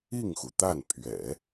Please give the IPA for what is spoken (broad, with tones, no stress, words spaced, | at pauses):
i˥˩ŋxu˩t̪a˥˩n pʰɥɛ̰˨˩˦